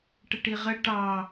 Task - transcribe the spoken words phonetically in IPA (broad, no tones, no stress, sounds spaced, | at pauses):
ʈ ə ʈ i ʁ ə ʈ ɑ